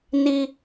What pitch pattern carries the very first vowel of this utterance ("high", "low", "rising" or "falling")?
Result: high